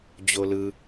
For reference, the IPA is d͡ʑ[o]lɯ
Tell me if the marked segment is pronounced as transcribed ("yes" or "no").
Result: yes